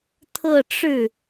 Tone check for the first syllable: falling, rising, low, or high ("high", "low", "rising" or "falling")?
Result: falling